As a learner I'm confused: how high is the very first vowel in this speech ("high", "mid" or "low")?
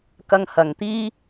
low